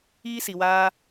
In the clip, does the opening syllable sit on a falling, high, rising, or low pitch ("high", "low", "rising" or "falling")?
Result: high